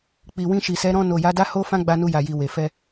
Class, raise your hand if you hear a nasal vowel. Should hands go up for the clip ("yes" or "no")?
yes